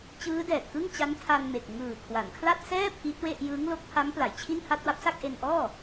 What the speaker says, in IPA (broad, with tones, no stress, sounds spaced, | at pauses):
t͡ɕ ɯː˦˥ d ɛː˨˩ t̚ k ɯ˥˩ ŋ t͡ɕ a˦˥ n tʰ a˧ n m e˨˩ k̚ ŋ ɯː˨˩ kʰ w a˩˦ n kʰ l a˥˩ t̚ s ɛː˥˩ pʰ i˦˥ t̚ w e˥˩ ʔ j ɯː˦˥ ŋ l o˦˥ k̚ pʰ a˦˥ m p l a˩˦ j t͡ɕʰ i˥˩ n h a˥˩ t̚ w a˦˥ p̚ s a˥˩ k̚ ʔ e˧ n ʔ ɔː˥˩